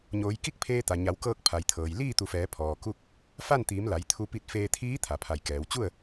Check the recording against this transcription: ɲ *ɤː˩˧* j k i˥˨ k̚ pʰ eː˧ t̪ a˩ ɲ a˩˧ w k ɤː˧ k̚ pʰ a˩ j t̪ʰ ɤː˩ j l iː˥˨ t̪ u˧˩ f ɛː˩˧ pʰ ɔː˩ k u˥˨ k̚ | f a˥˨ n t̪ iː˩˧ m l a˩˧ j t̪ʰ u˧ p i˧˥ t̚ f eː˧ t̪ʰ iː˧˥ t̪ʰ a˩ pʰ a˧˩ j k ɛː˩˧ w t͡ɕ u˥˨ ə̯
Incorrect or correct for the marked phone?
incorrect: oː˩˧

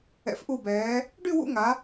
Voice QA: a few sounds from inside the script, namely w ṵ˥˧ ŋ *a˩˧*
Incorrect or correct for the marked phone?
correct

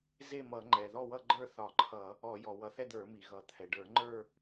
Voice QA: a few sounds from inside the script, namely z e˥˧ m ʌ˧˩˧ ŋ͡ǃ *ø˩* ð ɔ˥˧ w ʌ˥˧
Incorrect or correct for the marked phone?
incorrect: ɛ˩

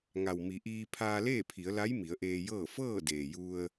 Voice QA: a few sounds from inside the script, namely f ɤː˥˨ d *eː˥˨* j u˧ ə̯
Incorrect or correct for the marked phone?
incorrect: eː˩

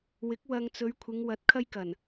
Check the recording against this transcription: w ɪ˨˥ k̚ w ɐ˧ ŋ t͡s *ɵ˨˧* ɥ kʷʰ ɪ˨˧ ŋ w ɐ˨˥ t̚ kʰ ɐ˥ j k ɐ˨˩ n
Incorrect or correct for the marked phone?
correct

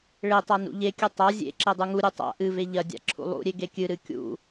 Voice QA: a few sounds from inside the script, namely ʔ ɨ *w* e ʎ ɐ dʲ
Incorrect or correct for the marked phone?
incorrect: v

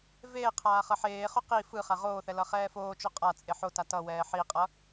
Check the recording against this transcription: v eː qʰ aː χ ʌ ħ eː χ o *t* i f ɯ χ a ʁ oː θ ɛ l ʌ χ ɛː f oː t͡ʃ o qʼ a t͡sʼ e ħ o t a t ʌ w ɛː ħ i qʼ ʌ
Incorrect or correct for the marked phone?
incorrect: q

